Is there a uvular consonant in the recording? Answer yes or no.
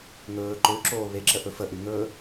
no